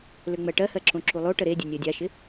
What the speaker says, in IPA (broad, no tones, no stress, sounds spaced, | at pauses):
l ø ŋ͡m ɜ ʈ ɜ h ɜ ǁ õ ǁ u lˠ o ʈ ə ɾ e dʲ ə nʲ ɜ dʲ a ʃ ɪ